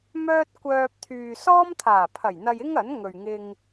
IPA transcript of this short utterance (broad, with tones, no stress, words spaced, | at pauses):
mœː˥t̚kʷœː˧p̚ t̪ʰyː˨sɔː˥mt̪ʰaː˨˩pʰɐ˨˩j n̪ɐ˧jɪ˥ŋ ɐ˨˥nŋɵ˨ɥŋɪ˧ŋ